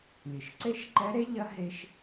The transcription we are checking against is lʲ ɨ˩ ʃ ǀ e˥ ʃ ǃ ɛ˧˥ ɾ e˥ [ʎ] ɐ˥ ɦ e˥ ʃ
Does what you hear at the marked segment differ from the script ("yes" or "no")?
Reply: no